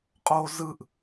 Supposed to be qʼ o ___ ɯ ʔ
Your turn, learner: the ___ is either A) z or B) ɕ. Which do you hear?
A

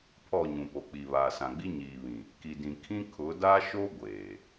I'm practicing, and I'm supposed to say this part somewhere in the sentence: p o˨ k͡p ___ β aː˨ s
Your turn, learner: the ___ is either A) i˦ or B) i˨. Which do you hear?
B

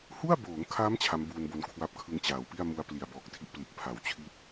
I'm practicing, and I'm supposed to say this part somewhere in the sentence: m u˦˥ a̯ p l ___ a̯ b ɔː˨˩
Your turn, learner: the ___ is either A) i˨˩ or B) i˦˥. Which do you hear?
A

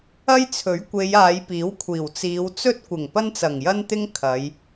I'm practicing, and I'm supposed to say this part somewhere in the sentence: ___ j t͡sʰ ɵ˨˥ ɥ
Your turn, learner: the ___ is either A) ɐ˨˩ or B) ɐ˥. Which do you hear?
B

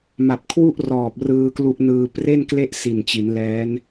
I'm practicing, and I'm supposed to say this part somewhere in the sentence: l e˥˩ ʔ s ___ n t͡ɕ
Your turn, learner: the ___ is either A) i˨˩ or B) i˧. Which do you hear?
A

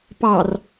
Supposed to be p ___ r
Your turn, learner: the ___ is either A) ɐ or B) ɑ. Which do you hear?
B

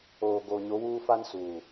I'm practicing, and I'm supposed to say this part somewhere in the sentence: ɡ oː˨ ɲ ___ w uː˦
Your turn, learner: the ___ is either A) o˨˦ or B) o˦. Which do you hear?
A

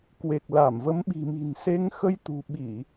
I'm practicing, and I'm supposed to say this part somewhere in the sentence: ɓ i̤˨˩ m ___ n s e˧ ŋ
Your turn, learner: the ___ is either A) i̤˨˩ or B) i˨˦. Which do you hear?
A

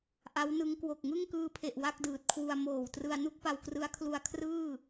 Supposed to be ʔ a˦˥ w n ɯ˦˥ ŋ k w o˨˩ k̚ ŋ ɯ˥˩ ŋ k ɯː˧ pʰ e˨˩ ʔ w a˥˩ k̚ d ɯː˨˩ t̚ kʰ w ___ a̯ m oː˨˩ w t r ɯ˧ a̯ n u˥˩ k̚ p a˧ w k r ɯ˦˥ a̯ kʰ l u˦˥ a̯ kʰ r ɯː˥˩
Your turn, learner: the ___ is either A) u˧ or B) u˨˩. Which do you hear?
A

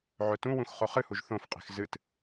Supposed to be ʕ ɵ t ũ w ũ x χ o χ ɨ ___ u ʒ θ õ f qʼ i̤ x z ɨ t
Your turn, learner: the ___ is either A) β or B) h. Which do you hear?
B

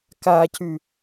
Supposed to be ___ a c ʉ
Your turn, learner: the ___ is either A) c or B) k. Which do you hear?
B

